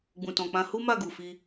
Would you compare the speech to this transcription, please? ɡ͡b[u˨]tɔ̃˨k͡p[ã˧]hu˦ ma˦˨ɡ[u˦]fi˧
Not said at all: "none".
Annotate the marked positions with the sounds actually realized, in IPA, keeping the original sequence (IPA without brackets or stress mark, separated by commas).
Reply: ũ˨, ã˧, u˨